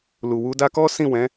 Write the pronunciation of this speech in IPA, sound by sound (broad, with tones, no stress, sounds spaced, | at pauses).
l u˨ w u˧ d a˦ k ɔ˦ s ĩ˦˨ w ɛ̃˨˦